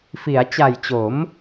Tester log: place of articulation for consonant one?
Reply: labial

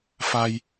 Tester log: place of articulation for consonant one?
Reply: labial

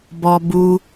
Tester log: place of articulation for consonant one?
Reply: labial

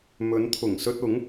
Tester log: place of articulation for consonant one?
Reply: labial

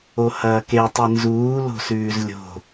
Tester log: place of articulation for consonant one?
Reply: glottal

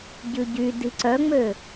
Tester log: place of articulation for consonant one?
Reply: palatal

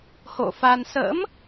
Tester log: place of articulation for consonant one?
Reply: glottal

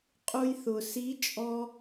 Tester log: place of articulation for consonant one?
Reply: uvular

